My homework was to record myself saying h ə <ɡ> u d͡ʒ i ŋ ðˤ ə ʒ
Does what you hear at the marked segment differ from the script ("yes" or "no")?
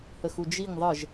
yes